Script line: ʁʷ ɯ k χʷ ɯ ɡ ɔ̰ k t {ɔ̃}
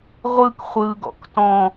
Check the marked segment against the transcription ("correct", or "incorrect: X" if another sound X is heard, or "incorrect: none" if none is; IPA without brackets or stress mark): correct